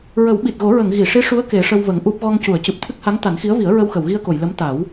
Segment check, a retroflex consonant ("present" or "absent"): present